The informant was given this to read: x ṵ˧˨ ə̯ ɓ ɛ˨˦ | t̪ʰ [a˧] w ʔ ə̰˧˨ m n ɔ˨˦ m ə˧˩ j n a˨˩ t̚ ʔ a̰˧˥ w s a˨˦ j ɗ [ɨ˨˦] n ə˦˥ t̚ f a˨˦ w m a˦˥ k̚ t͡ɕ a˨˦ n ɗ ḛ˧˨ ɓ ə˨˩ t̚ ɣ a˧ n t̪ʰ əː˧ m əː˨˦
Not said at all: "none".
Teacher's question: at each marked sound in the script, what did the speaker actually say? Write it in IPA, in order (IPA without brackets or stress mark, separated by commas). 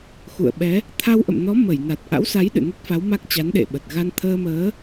a˧, ɨ̰˧˨